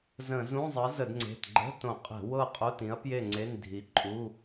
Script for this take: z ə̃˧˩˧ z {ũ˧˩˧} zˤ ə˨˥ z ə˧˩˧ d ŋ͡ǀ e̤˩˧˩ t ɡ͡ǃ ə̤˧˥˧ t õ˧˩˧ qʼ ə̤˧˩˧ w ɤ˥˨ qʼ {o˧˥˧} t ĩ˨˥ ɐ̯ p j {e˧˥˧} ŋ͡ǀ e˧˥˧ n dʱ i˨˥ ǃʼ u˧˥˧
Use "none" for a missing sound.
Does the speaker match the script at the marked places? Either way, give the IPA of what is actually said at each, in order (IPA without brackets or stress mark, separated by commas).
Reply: ũ˧˥˧, o˧˥˧, e˥˨